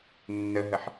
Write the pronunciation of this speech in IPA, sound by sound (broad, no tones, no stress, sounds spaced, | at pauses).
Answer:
nː ə ɦ ə ħ